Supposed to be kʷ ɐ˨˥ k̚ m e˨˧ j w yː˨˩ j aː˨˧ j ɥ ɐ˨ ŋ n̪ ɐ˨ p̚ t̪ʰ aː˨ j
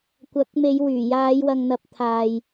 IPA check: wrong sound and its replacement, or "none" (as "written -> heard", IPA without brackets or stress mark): ɥ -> w